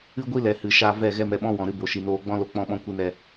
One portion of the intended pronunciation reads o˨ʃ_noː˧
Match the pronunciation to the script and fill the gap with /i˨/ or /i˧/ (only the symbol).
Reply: i˨